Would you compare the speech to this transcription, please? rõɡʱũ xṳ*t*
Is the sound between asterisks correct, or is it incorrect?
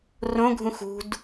incorrect